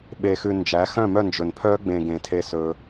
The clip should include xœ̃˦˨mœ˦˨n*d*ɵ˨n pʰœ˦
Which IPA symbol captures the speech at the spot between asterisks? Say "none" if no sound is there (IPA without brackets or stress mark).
d͡ʒ